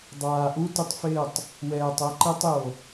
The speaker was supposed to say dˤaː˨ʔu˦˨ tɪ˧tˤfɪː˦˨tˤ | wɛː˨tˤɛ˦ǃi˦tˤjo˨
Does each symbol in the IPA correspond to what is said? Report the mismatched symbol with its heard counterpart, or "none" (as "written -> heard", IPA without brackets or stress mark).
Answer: u˦˨ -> u˦